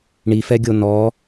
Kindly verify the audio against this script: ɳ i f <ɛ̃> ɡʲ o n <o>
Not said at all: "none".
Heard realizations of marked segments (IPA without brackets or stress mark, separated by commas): ɛ, ɔ